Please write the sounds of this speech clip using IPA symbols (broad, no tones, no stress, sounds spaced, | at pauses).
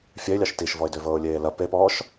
fʲ ɛ ɪ̯ lʲ ɑ ʃ t i ʃ v ɔ ɪ̯ d ø v ɤː ʊ̯ lʲ eː l ɐ p e p ɔː ʃ